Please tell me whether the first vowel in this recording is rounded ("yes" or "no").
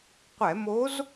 no